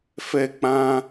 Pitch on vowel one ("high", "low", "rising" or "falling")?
falling